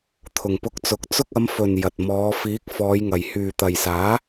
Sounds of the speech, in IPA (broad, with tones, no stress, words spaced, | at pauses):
t̪ʰʊ˨ŋpʊ˧k̚t͡sʊ˨˥k̚ t͡sʊ˧k̚ɐ˨˧m fɵ˨n jɐ˨t̚ mɔː˨˧ fiː˨˥k̚ fɔː˨˧jŋɐ˨j hyː˨t̪ɐ˨jsaː˨˥